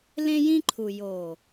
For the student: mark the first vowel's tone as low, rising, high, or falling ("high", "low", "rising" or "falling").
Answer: high